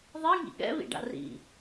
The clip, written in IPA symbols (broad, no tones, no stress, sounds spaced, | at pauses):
ðˤ i ŋ ḭ ɠ ɛ̰ β ḭ ɖ a̰ r ḭ